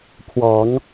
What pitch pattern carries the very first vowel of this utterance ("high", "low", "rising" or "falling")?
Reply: low